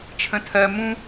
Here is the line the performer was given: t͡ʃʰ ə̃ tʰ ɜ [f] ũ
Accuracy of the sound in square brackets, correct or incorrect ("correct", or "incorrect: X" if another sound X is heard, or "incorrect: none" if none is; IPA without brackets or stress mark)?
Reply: incorrect: m